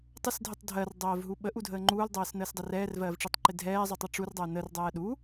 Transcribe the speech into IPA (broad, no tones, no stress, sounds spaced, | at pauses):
tˤ ə s dʱ ɪ tˤ dʱ ɜ r dˤ ɜː v ɦ u ɓ ə ʔ u dʱ əː ŋ͡ǃ uː l dˤ ɜː s n əː s dˤ ɛ r ɛː r v ɜː v ʈ͡ʂ ɜ tˤ ǃ ɪ dʱ ɛː zˤ u tˤ ɜ ʈ͡ʂ u r dˤ əː n ə r dˤ ɜː ɗ u